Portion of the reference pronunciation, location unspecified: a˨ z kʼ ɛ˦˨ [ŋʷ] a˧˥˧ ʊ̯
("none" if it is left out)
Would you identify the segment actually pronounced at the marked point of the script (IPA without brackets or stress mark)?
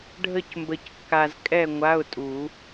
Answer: ŋʷ